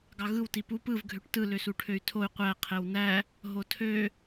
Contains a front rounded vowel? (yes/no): yes